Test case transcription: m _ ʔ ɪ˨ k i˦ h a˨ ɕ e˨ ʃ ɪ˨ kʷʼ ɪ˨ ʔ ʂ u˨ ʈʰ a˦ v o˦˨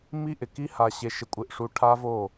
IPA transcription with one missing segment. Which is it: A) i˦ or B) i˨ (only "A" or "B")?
A